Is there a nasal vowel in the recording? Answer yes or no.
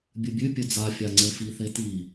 no